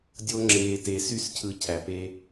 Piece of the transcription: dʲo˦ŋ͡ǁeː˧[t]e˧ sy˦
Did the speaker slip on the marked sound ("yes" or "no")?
no